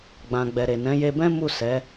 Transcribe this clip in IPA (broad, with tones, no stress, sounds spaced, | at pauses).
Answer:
ɡ͡b ã˨ ɡ͡b ɛ˨ ɾ e˨ n ɛ̃˨˦ j e˧ b ɛ̃˦ m u˦˨ s ɛ˨˦